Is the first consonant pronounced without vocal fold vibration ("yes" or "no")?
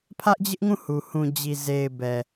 yes